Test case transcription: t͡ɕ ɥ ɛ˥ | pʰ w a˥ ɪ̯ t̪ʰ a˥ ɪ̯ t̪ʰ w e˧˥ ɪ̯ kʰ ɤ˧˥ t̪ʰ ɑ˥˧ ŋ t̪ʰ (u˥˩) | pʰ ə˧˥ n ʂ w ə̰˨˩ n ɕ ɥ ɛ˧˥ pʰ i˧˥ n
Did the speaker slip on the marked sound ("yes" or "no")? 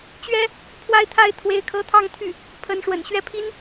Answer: yes